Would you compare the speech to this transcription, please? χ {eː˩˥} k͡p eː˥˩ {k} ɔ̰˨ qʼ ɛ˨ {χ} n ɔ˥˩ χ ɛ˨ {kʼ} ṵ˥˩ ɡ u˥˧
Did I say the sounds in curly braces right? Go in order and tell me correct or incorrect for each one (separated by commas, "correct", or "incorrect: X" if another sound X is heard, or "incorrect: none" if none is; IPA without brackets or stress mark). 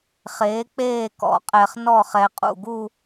correct, correct, correct, incorrect: qʼ